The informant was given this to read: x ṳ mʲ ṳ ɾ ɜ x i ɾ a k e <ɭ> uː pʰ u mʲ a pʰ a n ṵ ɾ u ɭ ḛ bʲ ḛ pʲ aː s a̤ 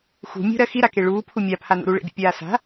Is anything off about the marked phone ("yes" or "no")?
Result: no